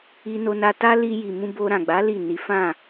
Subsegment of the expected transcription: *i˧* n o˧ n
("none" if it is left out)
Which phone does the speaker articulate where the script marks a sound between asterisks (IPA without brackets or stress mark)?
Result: i˧